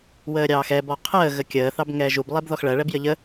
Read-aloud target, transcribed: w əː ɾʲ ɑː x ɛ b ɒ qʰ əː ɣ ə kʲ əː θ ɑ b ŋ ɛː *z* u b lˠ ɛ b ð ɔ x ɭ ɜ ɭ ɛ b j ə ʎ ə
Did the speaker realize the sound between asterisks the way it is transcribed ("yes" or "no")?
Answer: no